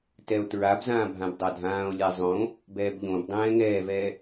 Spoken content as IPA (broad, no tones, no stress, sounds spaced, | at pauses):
t ɛ o̯ t ɹ a b z ãː bʱ ã b dˤ a dʱ ãː o̯ lʲ a zˤ õ | b ɛː b ʎ õ b dˤ ɛ̃ː ŋ ɛː v ɛː